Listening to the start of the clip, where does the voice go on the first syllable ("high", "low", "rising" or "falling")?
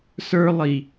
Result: high